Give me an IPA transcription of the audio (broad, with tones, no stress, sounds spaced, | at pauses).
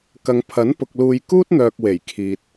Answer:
k ɐ˨ ŋ pʰ ɐ˨˥ n p ʊ˨ k̚ l uː˧ j k uː˥ t̚ n̪ œː˨ k̚ w e˨˩ j kʰ iː˨ t̚